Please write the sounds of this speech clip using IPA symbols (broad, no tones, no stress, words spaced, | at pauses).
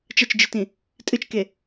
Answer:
t͡ʃɐt͡ʃd͡ʒɨtĩ | tʼɨt͡ʃke